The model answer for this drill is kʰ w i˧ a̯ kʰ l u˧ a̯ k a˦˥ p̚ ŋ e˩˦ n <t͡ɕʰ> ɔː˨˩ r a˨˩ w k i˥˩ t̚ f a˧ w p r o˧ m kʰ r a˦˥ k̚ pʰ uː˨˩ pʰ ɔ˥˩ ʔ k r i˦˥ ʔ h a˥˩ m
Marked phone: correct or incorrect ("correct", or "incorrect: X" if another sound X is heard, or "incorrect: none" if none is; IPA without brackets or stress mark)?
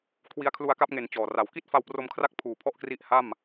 incorrect: t͡ɕ